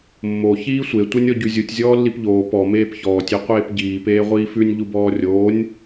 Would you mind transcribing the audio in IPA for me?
mːo çiːsʷe tʷenʲɔɟʉzʲutʲ zʲɔːlːipʎoː pɔ meːpçɔːtʲ iqʷeːpɟiː peːʁʷiːfʉnʲ ʎubɔːrʲoːnʲ

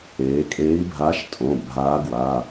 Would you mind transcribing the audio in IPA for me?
eː˩˧kʼe˧˥i̯bʱaː˧˥ʃ tʼõ˩˧˩bʱaː˧˥ ɡwa˩˧˩

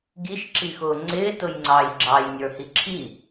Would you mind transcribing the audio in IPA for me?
ɡiʃ ǁixʊːŋ͡ǀɪː tʊjŋ͡ǀɑːjɡ͡ǁɑj nʲə˞hiǁʰi

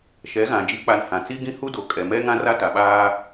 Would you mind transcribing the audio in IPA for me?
ʃɛ˨˦ɣã˨ d͡ʒi˨˦k͡pa˨n hã˨ t͡si˦ɡĩ˦hu˦ do˨ kʼɛ˨mɛ˦ ŋã˦ra˦ta˨ ɓaː˦

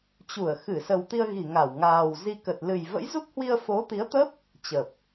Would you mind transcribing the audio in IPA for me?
t͡ɕu˧˩ə̯ xɨ˧˩ sə˨˩wt̪i˧ə̯ɣi˧˩ ŋa˧˩wŋaː˨˩w zi˧ kə˨˩t̚ lɨ˨˩j və̰˧˥jzu˦˥k̚hwi˧ə̯ fo˨˦t̪i˨˦ə̯t̪ə˦˥p̚ | t͡ɕə˨˩p̚

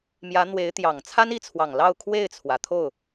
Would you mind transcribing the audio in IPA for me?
mjä˧˥n̪we˧˥ɪ̯t̪jɑ˨˩ŋ t͡sʰa˥ni˥˩t͡sʰwɑ˨˩ŋlɑ˥˧ʊ̯ kʰwe˥˩ɪ̯t͡sʰwä˩ t̪ʰo˥˩ʊ̯

